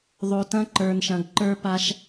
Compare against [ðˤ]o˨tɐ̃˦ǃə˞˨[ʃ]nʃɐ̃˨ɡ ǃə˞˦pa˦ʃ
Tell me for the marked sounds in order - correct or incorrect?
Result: correct, incorrect: none

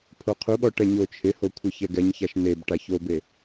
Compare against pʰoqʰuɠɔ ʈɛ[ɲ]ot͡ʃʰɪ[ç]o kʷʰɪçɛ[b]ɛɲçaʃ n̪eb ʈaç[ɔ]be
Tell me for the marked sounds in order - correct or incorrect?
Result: correct, incorrect: h, incorrect: ɡ, incorrect: o

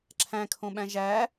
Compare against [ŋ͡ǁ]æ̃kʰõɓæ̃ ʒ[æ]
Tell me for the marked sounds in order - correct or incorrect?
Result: incorrect: ǁʰ, correct

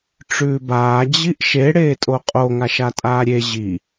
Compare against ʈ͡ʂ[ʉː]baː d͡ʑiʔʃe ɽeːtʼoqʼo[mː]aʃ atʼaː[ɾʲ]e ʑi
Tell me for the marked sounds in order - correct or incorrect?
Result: correct, incorrect: ŋ, correct

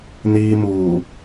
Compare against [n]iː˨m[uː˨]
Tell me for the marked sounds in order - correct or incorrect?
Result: correct, correct

